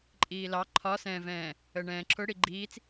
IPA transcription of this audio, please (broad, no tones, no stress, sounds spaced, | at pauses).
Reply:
ǃʼ iː l ɑ ǃʰ ɒ s ɛ̃ː v ɛ̃ː | ə ɳ ɛ̃ː ǁʰ ʊ ɽ i ɡ͡ǃ iː t͡s